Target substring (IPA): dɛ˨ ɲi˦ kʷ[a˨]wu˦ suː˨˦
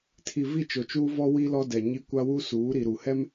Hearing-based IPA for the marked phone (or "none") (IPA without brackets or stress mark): a˦